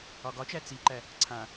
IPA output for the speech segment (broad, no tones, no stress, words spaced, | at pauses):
ɒɡɒt͡ʃæ t͡siǃæ | ǀʰã